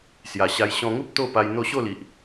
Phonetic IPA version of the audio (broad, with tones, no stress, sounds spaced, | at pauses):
s j a˨˩ ɕ a˧ j ɕ ɔ̃˧ ŋ u˦ p̚ t̪ o˥˧ p a˧ j n̪ o˥˧ ɕ o˥˧ l i˨ ʔ